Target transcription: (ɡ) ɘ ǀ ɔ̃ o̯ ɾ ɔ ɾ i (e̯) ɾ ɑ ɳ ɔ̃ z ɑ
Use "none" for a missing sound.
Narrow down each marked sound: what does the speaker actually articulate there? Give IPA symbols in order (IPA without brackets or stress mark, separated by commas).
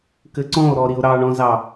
k, o̯